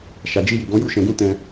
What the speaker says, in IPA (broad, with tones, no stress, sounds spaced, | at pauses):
ʃ a˨ d͡ʒ i˧ j i˨ ɡ ɔ̃˨˦ j u˦˨ ʃ ɛ̃˨ ɡ ũ˧ t ɛ̃˧